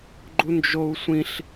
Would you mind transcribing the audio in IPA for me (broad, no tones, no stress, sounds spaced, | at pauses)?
ɡ͡ǃ u n d͡ʒ o u̯ sʷ ĩ ɬ